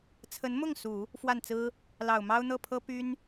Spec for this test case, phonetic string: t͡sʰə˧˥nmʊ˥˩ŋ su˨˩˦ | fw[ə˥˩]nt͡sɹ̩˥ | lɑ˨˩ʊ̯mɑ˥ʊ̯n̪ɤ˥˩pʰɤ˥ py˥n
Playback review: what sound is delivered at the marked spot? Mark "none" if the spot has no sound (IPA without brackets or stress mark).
a˥˩